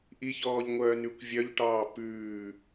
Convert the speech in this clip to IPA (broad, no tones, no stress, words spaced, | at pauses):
ʔiçɔːʎ ŋʷœːnʉkʷvʲœʎʈɑː pʉː